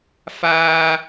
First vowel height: low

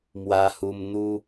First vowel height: low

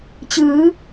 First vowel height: high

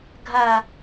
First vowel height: low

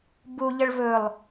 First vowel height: high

